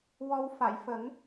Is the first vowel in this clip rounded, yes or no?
yes